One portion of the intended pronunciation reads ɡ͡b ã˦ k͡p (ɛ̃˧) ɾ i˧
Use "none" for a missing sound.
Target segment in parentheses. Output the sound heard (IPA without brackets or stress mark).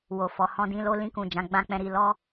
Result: ɛ̃˧